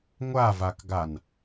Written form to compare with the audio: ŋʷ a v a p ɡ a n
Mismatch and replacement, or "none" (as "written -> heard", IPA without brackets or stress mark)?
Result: p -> k